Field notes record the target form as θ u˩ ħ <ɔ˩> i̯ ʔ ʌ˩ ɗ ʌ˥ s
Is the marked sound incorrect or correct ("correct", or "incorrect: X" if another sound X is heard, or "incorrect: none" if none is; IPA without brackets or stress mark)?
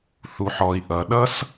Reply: correct